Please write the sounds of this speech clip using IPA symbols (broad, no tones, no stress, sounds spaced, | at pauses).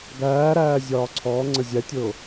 ɡ æː ɾ æː zʲ ɒː ǀʰ ɔː ŋ͡ǀ ə zʲ æ tʲ ʊː